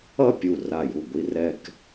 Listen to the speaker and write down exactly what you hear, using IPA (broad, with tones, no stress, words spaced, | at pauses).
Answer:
ʌ˥˧pʲu˧˩ ra˧˩ju˧˩ɡʷi˧ rɛ˧k